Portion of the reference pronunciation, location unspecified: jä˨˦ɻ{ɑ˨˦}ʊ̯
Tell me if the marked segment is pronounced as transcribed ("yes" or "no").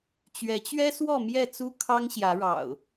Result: no